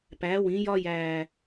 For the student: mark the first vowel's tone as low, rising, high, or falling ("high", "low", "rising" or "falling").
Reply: rising